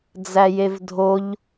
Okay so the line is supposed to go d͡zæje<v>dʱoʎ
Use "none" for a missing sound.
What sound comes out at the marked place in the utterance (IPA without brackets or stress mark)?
v